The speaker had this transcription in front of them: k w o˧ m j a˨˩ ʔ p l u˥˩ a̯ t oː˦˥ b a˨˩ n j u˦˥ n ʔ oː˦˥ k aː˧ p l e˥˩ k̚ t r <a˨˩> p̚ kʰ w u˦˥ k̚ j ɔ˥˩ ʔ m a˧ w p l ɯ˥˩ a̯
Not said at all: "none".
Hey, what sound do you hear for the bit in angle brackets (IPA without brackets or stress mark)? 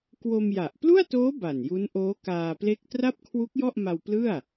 a˥˩